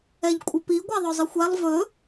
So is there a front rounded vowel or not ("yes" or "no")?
no